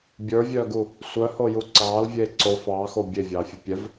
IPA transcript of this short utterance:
bʲə˞vʲœːɡu | sʷœhoju ǀɑːlvʲeː ǀo fɑːxo bʲevʲɑːfʲu pʲɛv

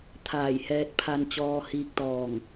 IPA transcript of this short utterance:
t̪ʰaː˧˩jhɛː˧t̚ pʰa˧nt͡ɕɔː˧ hiː˧k̚t̪ɔː˧˩ŋ

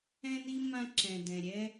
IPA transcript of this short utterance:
ɛ̃˥ni˥ mã˥ǁɛ̃˩ dɛ̃˩ɾʲɛ˥

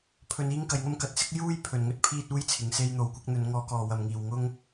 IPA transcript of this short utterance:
pʰɵ˧n iː˥ŋkɐ˨˧jŋɐ˥m kɐ˨˥t̚sɪ˥k̚ juː˥j pʰɵ˨nŋɵ˥t̚ pʰiː˥t̚uː˥jt͡sʰɪ˨˧ŋ se˧jn̪o˨wkʷɪ˨˥k̚n̪ɵ˨˧n ŋɔː˧kɔː˨wɐ˨mŋiː˨w ŋʊ˥ŋ

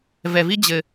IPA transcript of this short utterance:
vɛ˧vi˥ d͡ʑɘ˧

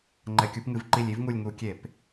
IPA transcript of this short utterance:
ŋ͡ǃɛ˧˩˧kʲu˨˥pŋɨ˨˥v ǃi˦˨lʲi˥vŋu˦˨lʲ ŋu˧˩˧kʲe˧˩˧p

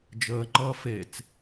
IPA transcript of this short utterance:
d͡ʒəːŋ͡ǃʌː fet͡s

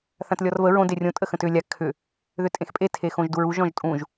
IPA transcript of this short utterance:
θãtlʲɔrvə ɹõ derʲõ tʼəxə̃tʏ lʲa kʰʏ | ðʏtʼẽxpʼe tʰexõʒduɹuʒ ɔ̃ʒtʼũʒ

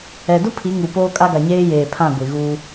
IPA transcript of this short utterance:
ɛ˨ dʊ˦ pʰi˨˦ ŋu˨poː˦kʼa˦ ɡa˨ɲeː˦jeː˨ pʰã˦˨ ɡʷi˨ɣuː˦

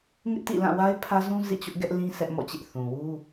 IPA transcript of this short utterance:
ŋɪ˦ʔtḭ˦˨ lã˦˨wa˦ɪ̯pʰä˦zũ˦ zḭ˦˨t͡ɕʊ˦ʔɡɛ˦ʔ lĩ˦ sɛ˦ʔmɔ̰˦˨t͡ɕɪ˦ʔ θũ˨wu˦

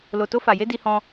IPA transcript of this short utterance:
lo˧to˦fa˧je˦ di˦hɔ̃˦

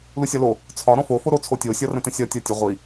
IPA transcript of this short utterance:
lusʲɒlo | t͡sʰɒ ɾɔ̃fo foɾo t͡sʰotʲo sʲɒrə̃tə̃sʲɒ tʲɒtʲə ʁʷi

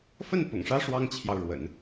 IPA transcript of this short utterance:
fə˥˩n pʊ̰˨˩ŋʂä˥ ʂwɑ˥ŋt͡ɕʰjɑ˨ʊ̯ɻwə̰˨˩˦n

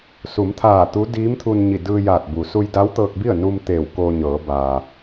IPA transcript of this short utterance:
su˩˧mt̪ʰaː˧˩ t̪u˧˥ diː˧˥mt̪ʰu˧nɲi˧˩ dɯː˧jaː˧˩t̚bu˩ su˧jda˧˥wt̪ɤː˧k̚bi˥˨ə̯ nu˧m t̪eː˧˩wkoː˧ɲɤː˩˧ baː˩

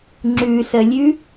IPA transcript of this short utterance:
ŋ͡ǁʉsəlʲʉ

